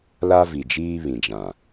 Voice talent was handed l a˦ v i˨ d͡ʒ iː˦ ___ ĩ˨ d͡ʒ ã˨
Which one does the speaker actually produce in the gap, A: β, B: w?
A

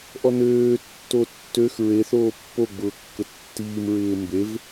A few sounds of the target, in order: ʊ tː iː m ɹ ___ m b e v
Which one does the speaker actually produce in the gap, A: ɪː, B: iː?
A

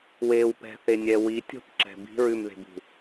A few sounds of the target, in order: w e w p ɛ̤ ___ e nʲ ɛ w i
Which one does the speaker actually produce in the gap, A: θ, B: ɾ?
A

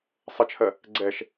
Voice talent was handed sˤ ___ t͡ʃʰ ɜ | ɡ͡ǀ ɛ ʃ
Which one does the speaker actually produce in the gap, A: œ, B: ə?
B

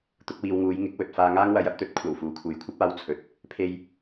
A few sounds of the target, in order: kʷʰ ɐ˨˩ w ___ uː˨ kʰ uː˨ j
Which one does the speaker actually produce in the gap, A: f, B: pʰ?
A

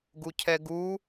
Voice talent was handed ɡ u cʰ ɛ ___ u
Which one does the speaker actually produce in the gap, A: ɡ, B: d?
A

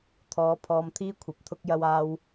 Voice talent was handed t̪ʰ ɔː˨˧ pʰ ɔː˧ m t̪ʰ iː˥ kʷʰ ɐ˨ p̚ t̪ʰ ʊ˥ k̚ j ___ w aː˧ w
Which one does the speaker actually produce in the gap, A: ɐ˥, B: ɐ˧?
B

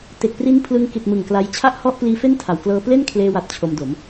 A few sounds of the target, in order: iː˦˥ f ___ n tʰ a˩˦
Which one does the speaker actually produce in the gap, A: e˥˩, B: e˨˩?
A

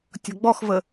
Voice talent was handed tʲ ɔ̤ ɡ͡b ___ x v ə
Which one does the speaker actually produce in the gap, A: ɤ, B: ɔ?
B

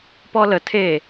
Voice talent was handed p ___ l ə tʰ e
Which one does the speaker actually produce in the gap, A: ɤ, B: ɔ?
B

